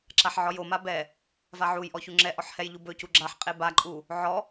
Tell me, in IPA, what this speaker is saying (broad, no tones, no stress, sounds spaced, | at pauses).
ǁ a ħ ʕ ɔ j o m a b ɛ | v a ʕ u j ʔ ɔ ç u ŋ͡ǁ ɛ ʔ ɔ ħ h ɛ j ʎ u b ɵ c u ɡ͡ǁ a ħ qʼ e b a ǃʼ u | ʕ ɔ